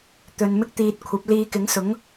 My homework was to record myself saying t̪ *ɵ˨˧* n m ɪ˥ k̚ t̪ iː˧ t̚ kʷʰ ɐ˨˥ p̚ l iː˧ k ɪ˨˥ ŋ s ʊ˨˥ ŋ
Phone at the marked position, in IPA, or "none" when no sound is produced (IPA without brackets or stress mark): ɵ˨˧